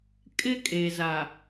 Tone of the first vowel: high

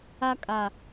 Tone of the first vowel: high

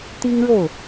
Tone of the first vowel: high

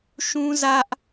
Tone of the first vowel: high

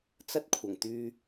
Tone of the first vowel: high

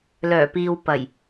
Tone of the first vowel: low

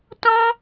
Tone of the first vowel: high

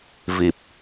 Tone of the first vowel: low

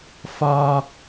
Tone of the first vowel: high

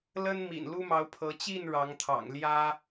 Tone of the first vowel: high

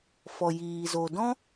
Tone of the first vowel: low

